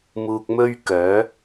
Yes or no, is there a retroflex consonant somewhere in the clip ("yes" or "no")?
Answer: no